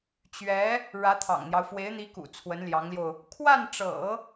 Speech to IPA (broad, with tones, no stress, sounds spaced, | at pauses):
t͡ɕ ɥ ɛ˧˥ | ɻ ä˧˥ t̪ʰ ɑ̰˨˩ ŋ n̪ j ɑ˦ ʊ̯ f w e˧˥ ɪ̯ n̪ i˧˥ k ṵ˨˩ t͡sʰ w ə˧˥ n l j ɑ˧˥ ŋ l j o˧ ʊ̯ | kʰ w a˥˩ n ʈ͡ʂ ɤ̰˨˩˦